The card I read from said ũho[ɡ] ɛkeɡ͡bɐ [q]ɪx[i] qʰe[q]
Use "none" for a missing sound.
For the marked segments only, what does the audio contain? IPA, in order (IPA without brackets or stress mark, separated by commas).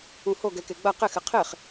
ɡ, q, ɪ, χ